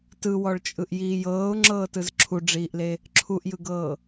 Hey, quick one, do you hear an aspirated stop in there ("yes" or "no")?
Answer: yes